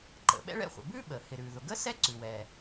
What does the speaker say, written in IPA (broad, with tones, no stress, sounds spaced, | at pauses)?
ǃ ə̰˩ ɓ ɛ̰˥ ɭ ɛ̰˥ χʷ ə̰˩ b ʉ˥ ɓ ə˩ h ɪ˩ ɾ ʉ˩ ð ʊ˩ ɡ ə˥ s ɛ˥ ǀ ʉ˩ w ɛ˩